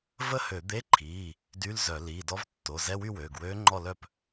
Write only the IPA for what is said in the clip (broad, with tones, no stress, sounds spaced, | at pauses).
v ə˥˨ h ø˧˩˧ d̪ e˧˥˧ ǃʰ iː˩˧˩ | d y˧˥˧ l z œ˧˩˧ l iː˩˧˩ d ɔ˧˥ v tː o˩˧˩ z ɛ˧˥˧ w y˥˨ w øː˩˧˩ ɡ w øː˧˥ ŋ͡ǃ ɔ˥˨ l œ˥˨ p